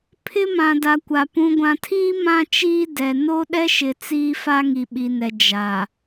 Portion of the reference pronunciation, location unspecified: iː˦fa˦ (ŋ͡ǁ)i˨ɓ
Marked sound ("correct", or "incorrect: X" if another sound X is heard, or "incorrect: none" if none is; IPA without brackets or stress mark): incorrect: ŋ